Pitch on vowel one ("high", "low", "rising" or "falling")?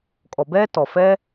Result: low